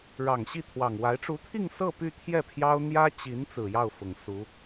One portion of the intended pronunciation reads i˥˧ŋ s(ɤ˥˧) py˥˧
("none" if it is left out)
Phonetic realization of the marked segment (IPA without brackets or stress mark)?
ɤ˥˧